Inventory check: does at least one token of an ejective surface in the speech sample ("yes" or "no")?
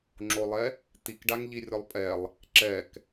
yes